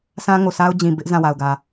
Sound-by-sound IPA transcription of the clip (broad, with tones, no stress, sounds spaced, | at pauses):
sʰ ã˦ ŋ o˨ sʰ a˦ ʊ̯ d͡ʑ ĩ˨ b ɪ˦ ʔ z ã˦˨ w a˨ ʊ̯ ɡ ä˨